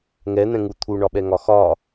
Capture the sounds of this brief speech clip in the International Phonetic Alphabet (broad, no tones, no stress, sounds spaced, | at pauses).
ŋ ɛ n̪ ɛ̃ ŋ u t̪ʰ u ɳ ɒ ɓ ɛ ŋ ɒ x ɒ